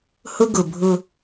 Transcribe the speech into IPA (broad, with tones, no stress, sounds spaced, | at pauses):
h ʊ˦ ɡ ʊ˨ bʱ ʊ˦